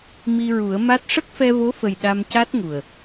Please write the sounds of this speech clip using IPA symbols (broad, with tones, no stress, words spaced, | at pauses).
mi˧ɹu˨˩˦ə̯ma˦˥t̚ ʂə˦˥k̚fɛ˧vo˧˥fə˨˩j ɗa˧mca˦˥t̚ŋu˨˩ə̯